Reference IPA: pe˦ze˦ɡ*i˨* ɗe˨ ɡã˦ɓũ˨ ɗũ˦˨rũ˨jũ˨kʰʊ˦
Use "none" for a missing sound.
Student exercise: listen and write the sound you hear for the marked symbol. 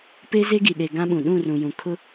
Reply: i˨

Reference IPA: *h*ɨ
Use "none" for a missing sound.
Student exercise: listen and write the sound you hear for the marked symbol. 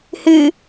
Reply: h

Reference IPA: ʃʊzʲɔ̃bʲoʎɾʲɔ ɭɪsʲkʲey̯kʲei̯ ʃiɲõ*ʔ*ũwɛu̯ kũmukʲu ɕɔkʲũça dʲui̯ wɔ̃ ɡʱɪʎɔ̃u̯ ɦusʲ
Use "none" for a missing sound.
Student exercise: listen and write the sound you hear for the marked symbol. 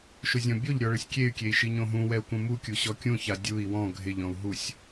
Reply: ɦ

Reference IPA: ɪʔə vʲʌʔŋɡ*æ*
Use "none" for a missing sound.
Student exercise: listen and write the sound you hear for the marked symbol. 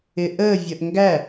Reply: æ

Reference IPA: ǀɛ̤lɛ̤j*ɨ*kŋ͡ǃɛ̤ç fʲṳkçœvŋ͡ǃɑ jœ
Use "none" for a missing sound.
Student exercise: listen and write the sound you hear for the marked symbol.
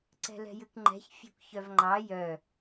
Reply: ɨ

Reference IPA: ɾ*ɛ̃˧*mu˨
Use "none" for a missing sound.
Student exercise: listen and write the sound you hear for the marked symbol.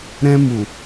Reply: ɛ̃˧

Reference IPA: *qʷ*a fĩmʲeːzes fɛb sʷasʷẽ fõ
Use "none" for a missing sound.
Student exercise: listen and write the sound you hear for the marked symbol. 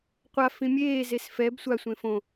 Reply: qʷ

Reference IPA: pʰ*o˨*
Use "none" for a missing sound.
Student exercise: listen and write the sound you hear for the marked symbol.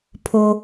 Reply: o˨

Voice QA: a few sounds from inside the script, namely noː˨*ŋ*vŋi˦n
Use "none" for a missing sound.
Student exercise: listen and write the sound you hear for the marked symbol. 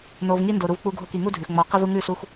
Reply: none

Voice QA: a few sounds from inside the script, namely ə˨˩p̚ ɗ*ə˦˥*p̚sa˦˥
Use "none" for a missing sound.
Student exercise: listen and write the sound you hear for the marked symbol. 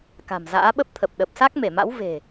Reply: ə˨˩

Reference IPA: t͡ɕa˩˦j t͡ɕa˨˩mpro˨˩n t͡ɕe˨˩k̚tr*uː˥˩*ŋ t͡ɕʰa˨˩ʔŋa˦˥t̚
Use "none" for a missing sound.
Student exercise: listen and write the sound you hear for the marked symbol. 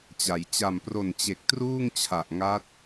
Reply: uː˥˩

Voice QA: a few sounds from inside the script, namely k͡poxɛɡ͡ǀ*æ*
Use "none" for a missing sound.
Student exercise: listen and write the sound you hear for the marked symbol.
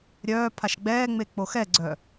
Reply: œ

